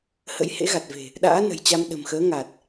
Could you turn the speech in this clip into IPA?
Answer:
hə̰˧˥jhḛ˧˥ɣa˨˩t̚ve̤˨˩ | ɗa̰ː˧˥nə̤˨˩jt͡ɕa˧m ɗə̤˨˩mxəː˨˦ ŋa˨˩t̚

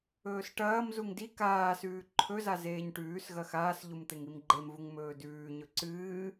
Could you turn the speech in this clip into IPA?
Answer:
ɵːsʈɐːmzuŋ di kaːsʉː ǃʰɵza zeːɲʈʉːsɣɐ xaːsʎum t̪eŋimɡ͡ǃemvuŋ mɵːdʉːɲɵ ǀɨː

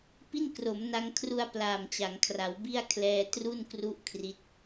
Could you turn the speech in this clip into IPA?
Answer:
pi˥˩nkro˩˦mna˧ŋkʰru˧a̯ plaː˨˩mt͡ɕa˩˦ŋkʰra˩˦wbi˥˩a̯ kʰlɛː˧ tru˥˩nkru˦˥ʔ kʰri˦˥t̚

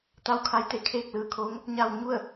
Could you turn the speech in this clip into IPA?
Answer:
t̪a˥˨wkʰa˧˥jt̪e˩ kʰeː˥˨k̚lɯː˧˩kʰoː˧˥ŋ | ɲa˧wɲu˥˨ə̯

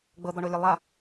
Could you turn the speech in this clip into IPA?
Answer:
ɡ͡bɤd̪ɔɳolʲɯ lˠa

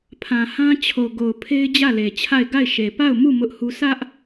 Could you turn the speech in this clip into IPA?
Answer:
pʰã˨hã˦t͡ɕʰo˨ ɡo˨ʊ̯pʰe˦ɪ̯ d͡ʑä˦˨le˨t͡ɕʰa˦˨ɪ̯ ɡa˦˨ɪ̯ʃe˨ pa˦˨ʊ̯mu˦˨ mʊ˦ʔhu˦ sä˦ʔ

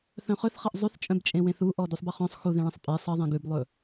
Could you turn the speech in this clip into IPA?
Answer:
θœ̃χɵθχɐʔ zˤʉθt͡ʃʼœ̃bt͡ʃʼẽwẽθ uʔɔ dusˤbɐχœ̃sˤ xuðẽɭẽsˤ pʼe sˤɐðˤẽ ɡʉblˠɵ

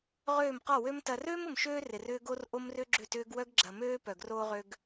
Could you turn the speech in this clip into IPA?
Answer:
ʁøː˥˨mqɔ˥˨wø˥m tɐ˧røː˥m ʊ˧mʃøː˥ rɪ˧rʏː˥ɡo˥r ʔo˥mrʏ˥ɡ͡ǁʏ˥˨tʏː˥ɡ wœ˥ɡɡ͡ǁɐ˧møː˥ pœ˧ɡroː˥ʁø˥ɡ

